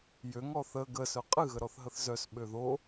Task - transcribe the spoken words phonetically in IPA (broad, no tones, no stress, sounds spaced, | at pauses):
j ø ŋ ɔ θ ə ɡ ə s œ qʼ ɨ ɣ ə ɾ ɔ θ ɦ ə θ z œ s ɓ ø ð o